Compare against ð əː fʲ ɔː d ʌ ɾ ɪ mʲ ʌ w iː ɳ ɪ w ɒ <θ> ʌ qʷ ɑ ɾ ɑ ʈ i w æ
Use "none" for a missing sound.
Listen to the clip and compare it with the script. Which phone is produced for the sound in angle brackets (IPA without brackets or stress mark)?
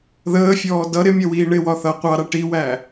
θ